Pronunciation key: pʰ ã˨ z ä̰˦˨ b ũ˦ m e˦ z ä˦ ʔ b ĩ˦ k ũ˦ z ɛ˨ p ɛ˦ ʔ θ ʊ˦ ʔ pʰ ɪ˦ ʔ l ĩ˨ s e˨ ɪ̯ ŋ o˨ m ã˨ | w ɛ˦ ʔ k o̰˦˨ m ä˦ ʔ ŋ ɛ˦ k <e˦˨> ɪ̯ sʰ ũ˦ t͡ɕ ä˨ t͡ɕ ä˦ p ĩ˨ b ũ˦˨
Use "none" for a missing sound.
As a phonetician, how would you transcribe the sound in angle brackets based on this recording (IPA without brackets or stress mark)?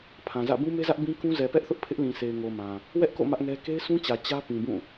e˦